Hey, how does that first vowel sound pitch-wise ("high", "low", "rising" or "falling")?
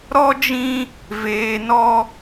high